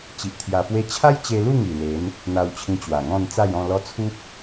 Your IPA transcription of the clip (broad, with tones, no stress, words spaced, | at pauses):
t͡ɕi˨ʔt̪ʰja˧pwe˦ t͡ɕʰa˦jt͡ɕe˧lu˥˧ ŋi˨˩le˨˦n | n̪a˧wt͡ɕʰĩ˧ t͡ɕwa˨˩ŋɔ̃˥˧n t͡sa˥˧jɔ̃˥˧lɔ˦ t͡sʰu˦p̚